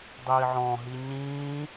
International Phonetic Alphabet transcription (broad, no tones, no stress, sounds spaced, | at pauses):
dˤ iː ʕ ɔ̃ ɦ i ɲ ĩː